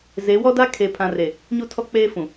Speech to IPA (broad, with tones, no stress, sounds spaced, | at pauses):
z e˨˦ w ɔ˦ d a˦ kʰ eː˨ pʰ ã˨ r e˨ | ɲ u˦ tʰ ɔ˦ k͡p eː˦ f ũ˨